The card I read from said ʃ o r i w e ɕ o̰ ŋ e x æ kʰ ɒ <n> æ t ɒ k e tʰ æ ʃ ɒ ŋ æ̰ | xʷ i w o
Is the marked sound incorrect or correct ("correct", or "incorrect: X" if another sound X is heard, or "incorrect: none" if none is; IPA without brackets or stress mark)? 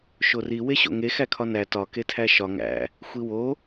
correct